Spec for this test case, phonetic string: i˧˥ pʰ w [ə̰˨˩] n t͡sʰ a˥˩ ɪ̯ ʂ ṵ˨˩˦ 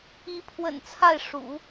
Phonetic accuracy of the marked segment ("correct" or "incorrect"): correct